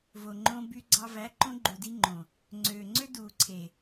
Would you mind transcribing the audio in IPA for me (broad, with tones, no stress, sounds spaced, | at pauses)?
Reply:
v o˨ ŋ͡ǃ õ˧ b y˧ ɡ͡ǀ ɑ˧ v æ˨˦ ǃ õ˧ ɡ͡ǃ u˨ d i˧ ŋ͡ǃ õ˨ | ŋ͡ǀ øː˨ ŋ͡ǀ ø˦ d uː˨ ǀʰ e˨